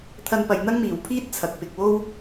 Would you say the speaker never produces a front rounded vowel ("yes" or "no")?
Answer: yes